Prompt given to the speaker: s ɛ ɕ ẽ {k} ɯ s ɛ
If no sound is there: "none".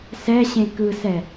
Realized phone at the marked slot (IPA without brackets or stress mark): k